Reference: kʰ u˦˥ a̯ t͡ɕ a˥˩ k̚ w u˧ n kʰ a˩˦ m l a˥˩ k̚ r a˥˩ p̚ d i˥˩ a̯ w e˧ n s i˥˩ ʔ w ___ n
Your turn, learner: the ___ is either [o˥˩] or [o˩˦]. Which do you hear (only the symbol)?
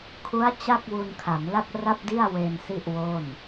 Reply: o˥˩